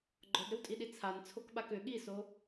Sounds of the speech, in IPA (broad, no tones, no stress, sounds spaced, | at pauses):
ɡ͡ǃ ɔ d ɾ ʏ w tʼ i ɗ i t͡sʰ a n t͡sʰ o k ɓ a k ʏ ɠ i s o